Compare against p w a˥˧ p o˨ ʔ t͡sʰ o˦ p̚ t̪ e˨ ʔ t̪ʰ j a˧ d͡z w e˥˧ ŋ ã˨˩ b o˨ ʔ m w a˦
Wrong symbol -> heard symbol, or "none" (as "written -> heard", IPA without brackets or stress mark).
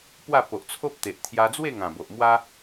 none